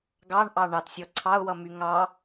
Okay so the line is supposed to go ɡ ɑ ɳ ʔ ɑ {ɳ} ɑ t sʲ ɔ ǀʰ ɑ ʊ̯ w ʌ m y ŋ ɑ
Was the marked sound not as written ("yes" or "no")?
no